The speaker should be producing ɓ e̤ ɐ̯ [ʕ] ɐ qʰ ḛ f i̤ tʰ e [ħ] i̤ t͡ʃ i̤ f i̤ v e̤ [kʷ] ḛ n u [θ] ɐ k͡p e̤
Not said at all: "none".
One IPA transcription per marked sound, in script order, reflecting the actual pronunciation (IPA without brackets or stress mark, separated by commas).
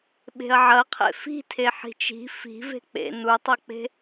ʕ, ħ, k͡p, tˤ